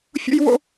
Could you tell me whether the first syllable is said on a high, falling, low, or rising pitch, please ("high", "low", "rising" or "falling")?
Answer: high